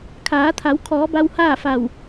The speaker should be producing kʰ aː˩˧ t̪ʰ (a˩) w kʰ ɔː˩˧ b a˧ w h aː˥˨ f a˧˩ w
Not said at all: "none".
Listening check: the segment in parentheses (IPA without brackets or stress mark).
a˩˧